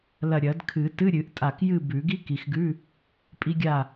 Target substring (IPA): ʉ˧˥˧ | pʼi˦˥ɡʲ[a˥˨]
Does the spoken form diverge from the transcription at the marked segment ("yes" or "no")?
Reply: no